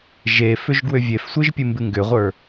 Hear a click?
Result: no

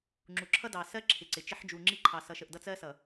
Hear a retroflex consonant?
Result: no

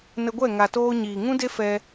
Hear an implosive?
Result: no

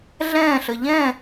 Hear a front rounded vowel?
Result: no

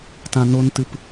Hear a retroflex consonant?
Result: no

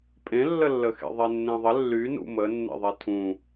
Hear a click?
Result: no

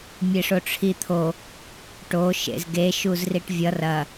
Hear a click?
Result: no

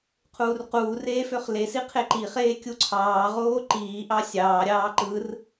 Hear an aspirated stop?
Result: yes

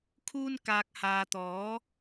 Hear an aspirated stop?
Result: yes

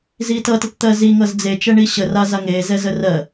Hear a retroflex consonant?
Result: yes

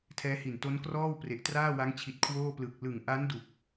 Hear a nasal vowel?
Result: no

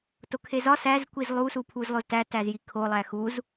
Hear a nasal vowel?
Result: no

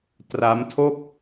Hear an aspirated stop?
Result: yes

